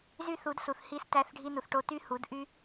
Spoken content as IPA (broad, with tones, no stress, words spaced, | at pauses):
zy˦θu˨˦dsu˨θ hi˦s tæ˦θɖʱi˦nu˧θ ʈo˧ ty˦hu˨˦d ʔy˦